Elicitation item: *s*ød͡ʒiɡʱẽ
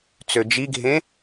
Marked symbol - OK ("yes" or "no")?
no